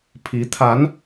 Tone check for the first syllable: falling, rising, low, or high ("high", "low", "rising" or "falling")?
rising